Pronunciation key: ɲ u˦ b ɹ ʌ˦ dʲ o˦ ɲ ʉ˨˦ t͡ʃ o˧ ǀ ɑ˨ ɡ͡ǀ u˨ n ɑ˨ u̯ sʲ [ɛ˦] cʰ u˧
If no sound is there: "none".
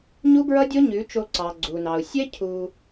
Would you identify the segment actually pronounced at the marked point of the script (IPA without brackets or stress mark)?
ɛ˦